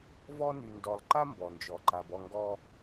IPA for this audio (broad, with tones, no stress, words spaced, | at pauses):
vɔ˦ ny˨ndɔ˨lˠǃa˦ mbɔ˨nd͡ʒɔ˨ǃa˨b ɔ˦˨ŋɡɔ˦